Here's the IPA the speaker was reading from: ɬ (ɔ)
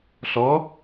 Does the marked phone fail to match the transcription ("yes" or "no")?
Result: no